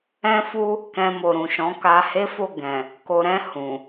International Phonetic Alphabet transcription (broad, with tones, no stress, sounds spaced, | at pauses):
ɛ̃˦ f u˦ | k ɛ̃˧ m o˨ ɾ ũ˨ ʃ ɔ̃˨˦ k a˧ h e˦ f o˦˨ ɡ ɛ̃˨ | k o˨ ɾ ɛ̃˧ h ũ˨